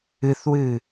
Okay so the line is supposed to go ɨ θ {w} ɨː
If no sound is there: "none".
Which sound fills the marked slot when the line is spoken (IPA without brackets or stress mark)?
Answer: w